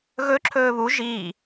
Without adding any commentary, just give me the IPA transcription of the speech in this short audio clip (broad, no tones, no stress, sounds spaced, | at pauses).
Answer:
ɣ ɵ ǁʰ ɵː β u ʒ iː